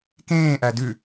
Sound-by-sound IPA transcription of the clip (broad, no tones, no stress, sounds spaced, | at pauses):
k ẽː ʔ æ d ʉ